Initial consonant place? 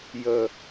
palatal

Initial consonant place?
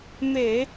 labial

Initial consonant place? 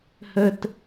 glottal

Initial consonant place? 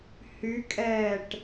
glottal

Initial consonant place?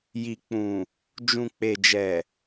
palatal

